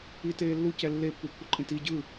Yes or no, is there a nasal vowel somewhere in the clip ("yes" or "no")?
yes